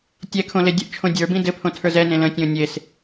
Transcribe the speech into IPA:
tʲ ɛ kʰ õ l e dʲ ə ʔ t͡ʃʰ õ dʲ ə˞ b ĩ d ɘ pʰ õ tʰ ə˞ z ɛ n ẽ l ə̃ tʲ õ nʲ e s

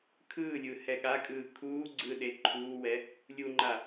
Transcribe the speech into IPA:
kʰ ɯː lʲ ɯː h ɛ ɠ a kʼ ɯː kʰ uː ɡ͡ǀ ɯ ɗ e ǃʰ uː w ɛ | lʲ u ŋ͡ǃ a

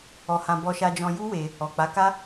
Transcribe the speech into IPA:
ɔ˧ h ã˧ b ɔ˧ ʃ a˧ d͡ʒ ɔ̃˧ j u˦ w e˧ | ɔ˨ k͡p a˨˦ k a˦

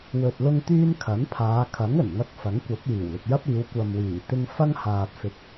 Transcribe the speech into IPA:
w ɵ˨ t̚ l ʊ˧ ŋ t̪ yː˧ n kʰ ɐ˨˥ n pʰ aː˨˧ kʰ ɐ˨˥ ŋ ɵ˨˩ n ŋ ɐ˧ k̚ f ɐ˨˥ ŋ kʷ ɐ˨˥ p̚ j iː˨˩ w l ɪ˨ k̚ j ɐ˥ p̚ iː˨˧ w kʷ ɐ˨ m w iː˨˩ t̪ ɪ˧ ŋ f ɐ˥ ŋ h aː˨ t̚ f ɪ˨ k̚

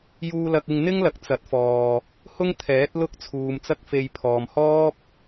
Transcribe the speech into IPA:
j uː˧ l ɐ˧ k̚ ɪ˧ ŋ n̪ ɪ˥ ŋ l ɐ˨ k̚ t͡s ɐ˨˥ t̚ f ɔː˨ | h ʊ˥ ŋ t̪ʰ ɛː˨˥ t̚ l ʊ˥ k̚ t͡sʰ uː˨ m t͡s ɐ˥ k̚ f e˧ j pʰ ɔː˨ m h ɔː˥ p̚

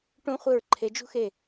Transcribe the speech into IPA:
ʈ ũ˦ χʷ ɯ˧˩ ɹ ǃʰ e˨˦ d͡ʒ ṳ˦ x e˧˩

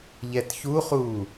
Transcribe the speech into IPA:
ʎ ɛ t ç u χ uː

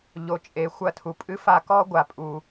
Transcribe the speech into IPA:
ʎ o˩ t͡ʃʼ e˩ xʷ ɐ˧ tʰ u˩ pʼ ɨ˥ f a˧ k ɔ˥ ɡʷ a˩ pʼ u˩

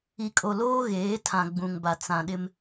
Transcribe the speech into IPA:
i˨ kʼ o˨ l oː˦ ɣ eː˨˦ tʰ ã˨ ɡ͡b ũ˨ ŋ b a˨ t͡s ã˨ ɗ ɪ˦ m

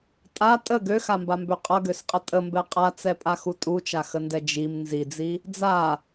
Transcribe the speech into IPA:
tʼ a tʼ ə ɡ ø x a m b a m b ø qʼ ʌ ɡ ø s qʼ ə tʼ ə m b ɛ qʼ a t͡s ɛ pʼ a x u tʼ u t͡ʃ a x ə n d ɛ d͡ʒ i m n z i d͡z i | d͡z a

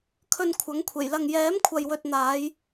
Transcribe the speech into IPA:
kʰ ɵ˧ n kʷʰ ɐ˨˥ ŋ kʷʰ e˨˩ j l ɐ˧ ŋ j ɛː˨˥ m kʷʰ ɐ˨ j w ɵ˨ t̚ n̪ aː˨˧ j

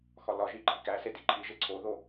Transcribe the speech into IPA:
x ɒ l ɒ ʒ i ǃʰ i k æ s e d i ǃʰ i ʒ e ǀʰ o ð o

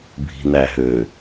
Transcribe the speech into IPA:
bʱ i̤ n æ ɦ ø

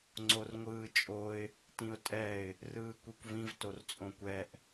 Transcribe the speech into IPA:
ŋ͡ǀ o r ŋʷ ɯː t͡ʃʼ o ɪ̯ | t ĩ ʊ̯ tʼ ɛ ɪ̯ | r ɯː kʷ i kʷ v ĩ v t o r t͡sʼ õ kʷ ɛ ʔ

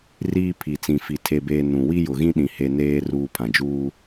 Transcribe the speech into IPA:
r iː˦ pʰ i˨ t͡s ĩ˨ f i˨ tʰ e˦ b eː˦ n ũ˨ w i˦ j ʊ˨ ɣ ĩ˦ ɗ ĩ˨ h e˦ n eː˦ r uː˦ pʰ ã˨ d͡ʒ uː˦

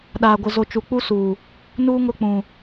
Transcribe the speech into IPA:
ɗ aː˨ ɡʷ ɪ˨ z o˨ t͡ʃ u˨ k͡p u˦ s uː˨ | n uː˦ ŋ ʊ˦˨ k͡p ũ˨

